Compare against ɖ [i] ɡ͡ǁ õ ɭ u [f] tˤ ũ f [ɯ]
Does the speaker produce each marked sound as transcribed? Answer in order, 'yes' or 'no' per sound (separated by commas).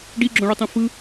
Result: yes, no, yes